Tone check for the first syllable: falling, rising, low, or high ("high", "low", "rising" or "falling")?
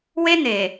high